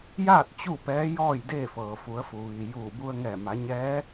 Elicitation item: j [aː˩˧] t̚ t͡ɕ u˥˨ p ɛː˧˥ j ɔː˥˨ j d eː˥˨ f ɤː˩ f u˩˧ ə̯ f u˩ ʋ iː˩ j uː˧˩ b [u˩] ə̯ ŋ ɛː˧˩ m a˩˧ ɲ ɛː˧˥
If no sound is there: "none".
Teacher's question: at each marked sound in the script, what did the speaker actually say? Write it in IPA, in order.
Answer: aː˥˨, u˧

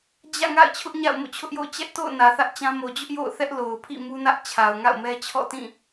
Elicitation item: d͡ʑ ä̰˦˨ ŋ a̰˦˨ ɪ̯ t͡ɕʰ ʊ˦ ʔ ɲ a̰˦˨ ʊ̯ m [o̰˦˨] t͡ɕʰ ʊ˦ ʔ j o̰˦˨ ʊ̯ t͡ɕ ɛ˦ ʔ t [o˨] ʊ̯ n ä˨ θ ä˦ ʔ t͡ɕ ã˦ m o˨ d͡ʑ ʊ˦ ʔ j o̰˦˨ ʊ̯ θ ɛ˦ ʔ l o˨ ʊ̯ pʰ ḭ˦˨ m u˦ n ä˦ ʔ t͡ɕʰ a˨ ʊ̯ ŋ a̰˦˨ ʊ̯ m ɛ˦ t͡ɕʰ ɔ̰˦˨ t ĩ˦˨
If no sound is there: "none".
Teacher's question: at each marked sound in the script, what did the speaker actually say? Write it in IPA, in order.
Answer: o̰˦˨, o̰˦˨

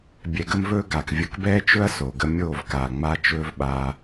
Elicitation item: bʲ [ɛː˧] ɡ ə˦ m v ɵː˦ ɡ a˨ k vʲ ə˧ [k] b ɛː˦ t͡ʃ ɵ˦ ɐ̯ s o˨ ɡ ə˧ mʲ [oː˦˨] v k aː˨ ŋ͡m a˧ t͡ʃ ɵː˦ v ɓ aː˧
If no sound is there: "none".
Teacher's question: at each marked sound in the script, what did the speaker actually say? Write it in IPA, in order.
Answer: ɛ˧, k, oː˦˨

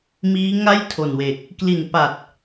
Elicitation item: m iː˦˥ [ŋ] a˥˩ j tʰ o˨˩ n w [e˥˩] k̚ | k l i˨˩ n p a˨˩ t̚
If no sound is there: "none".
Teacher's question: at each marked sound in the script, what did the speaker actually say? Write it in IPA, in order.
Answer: ŋ, e˨˩

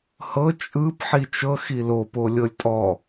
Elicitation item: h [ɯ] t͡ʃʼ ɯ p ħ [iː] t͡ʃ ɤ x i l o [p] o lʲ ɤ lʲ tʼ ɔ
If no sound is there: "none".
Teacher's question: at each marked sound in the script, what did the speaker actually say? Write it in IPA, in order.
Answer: ɤ, i, p

